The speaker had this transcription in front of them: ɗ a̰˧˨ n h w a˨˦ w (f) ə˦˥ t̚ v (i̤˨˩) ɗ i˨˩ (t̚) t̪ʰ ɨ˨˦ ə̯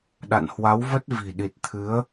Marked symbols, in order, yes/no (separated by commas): no, yes, yes